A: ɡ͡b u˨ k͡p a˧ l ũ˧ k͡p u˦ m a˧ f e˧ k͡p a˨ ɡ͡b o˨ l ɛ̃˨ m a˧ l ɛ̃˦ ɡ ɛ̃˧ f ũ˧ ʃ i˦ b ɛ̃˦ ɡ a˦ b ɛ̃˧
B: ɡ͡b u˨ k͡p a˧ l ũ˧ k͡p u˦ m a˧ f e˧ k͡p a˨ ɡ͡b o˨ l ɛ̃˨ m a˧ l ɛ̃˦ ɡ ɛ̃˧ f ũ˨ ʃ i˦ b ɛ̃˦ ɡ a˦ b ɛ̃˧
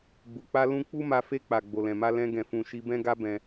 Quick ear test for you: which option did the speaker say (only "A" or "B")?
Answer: A